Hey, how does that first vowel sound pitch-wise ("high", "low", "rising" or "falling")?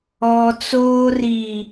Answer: low